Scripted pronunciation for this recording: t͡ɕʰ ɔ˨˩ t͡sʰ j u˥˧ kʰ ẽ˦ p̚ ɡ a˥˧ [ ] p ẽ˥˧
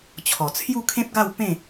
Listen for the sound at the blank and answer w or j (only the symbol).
w